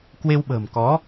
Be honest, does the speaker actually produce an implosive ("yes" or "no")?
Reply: yes